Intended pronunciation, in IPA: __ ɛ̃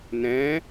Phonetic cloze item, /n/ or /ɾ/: n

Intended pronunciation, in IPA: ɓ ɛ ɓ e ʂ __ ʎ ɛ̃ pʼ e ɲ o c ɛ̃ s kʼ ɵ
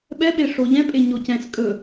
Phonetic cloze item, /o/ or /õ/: o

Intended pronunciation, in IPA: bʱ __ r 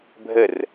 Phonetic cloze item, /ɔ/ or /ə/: ə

